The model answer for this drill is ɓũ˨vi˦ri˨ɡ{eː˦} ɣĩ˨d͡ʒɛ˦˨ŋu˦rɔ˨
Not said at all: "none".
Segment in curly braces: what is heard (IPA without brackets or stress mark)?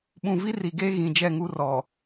eː˦